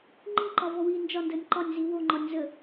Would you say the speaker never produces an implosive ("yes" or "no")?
yes